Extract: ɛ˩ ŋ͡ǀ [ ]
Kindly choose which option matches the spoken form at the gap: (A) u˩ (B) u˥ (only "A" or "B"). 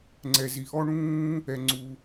A